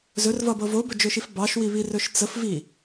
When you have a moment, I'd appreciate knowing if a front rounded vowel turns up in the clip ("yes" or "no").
no